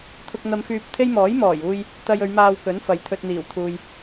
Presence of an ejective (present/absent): absent